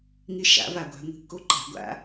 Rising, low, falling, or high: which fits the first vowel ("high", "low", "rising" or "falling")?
rising